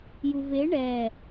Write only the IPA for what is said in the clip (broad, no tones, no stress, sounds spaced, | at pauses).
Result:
j u v e ɳ ɛ